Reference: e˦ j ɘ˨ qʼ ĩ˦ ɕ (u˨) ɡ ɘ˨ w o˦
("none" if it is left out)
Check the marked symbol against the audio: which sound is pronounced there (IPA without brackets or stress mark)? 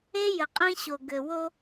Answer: o˨